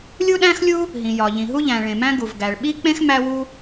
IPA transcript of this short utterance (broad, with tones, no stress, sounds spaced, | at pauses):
lʲ u˥ ɗ æ̃˥ x lʲ u˥ | ɦ ĩ˩ j ɒ˩ ʎ ĩ˩ ɦ u˥ ʎ æ̃˩ ɭ ẽ˩ m æ̃˥ ɡ u˩ v ɡ æ˩ ɭ ɓ i˥ k͡p ẽ˥ x m æ˥ w u˥